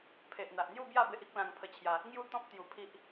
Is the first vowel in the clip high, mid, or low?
mid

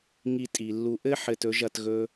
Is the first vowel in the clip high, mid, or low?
high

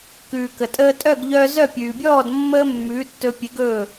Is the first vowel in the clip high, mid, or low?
high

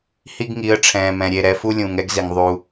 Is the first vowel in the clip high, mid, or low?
high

